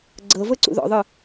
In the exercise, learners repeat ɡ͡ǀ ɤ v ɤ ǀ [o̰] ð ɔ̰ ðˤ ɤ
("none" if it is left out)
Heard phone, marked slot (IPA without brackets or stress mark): ṵ